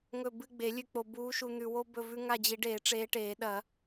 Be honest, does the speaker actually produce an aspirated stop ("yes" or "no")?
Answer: no